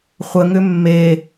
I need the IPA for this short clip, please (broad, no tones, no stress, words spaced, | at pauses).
χʷəŋʏ mːe